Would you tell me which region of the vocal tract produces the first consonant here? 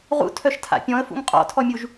uvula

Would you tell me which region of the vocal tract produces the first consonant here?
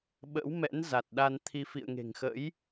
lips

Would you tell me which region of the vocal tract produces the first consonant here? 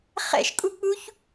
uvula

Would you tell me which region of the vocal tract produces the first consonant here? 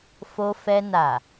lips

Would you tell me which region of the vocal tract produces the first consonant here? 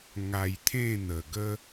velum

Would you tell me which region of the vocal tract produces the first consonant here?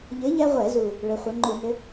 palate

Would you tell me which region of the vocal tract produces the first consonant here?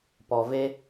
lips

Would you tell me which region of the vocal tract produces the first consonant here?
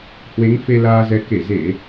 throat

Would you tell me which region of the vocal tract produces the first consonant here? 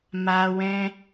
lips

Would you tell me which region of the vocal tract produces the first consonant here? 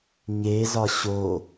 palate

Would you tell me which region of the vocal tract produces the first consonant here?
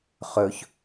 uvula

